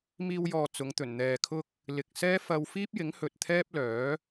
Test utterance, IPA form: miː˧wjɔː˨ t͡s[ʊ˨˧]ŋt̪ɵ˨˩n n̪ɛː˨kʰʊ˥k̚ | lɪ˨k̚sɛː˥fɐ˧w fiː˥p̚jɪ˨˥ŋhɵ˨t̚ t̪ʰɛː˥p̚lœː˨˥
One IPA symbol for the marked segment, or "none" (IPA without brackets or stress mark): ʊ˨˧